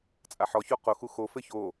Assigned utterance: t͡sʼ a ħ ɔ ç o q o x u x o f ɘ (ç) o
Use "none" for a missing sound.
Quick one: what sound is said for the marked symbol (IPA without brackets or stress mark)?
ç